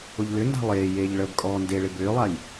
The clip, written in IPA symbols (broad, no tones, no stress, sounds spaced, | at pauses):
ʊ ʎ l ʏ n d a̤ lˠ eː j eː ʎ ɭ əː b kʼ ɔː n d e ɭ ɪ b ʏː lˠ a j